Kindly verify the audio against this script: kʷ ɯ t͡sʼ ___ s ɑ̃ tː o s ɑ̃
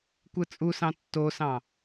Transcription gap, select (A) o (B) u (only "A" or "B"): B